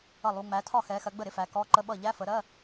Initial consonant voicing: voiced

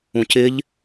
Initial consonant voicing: voiceless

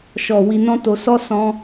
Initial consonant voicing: voiceless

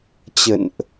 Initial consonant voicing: voiceless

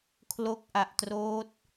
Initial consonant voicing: voiceless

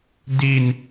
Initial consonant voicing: voiced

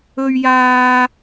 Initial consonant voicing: voiced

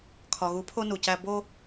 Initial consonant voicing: voiceless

